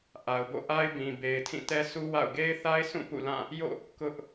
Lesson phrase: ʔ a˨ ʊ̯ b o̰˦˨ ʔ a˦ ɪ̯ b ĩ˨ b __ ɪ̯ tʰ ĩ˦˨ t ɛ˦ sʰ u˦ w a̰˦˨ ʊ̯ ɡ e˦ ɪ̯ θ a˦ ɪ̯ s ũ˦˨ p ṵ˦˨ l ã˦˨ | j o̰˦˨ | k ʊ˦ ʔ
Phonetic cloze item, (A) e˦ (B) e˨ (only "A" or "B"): B